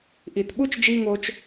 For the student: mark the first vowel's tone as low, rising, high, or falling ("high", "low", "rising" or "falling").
low